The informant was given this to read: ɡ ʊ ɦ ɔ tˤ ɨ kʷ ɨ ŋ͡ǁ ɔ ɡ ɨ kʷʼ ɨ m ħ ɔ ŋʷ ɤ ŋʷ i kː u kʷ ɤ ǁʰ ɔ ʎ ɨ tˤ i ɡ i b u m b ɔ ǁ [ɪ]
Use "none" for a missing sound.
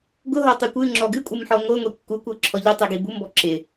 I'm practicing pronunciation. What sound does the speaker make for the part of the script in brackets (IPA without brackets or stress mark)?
ɪ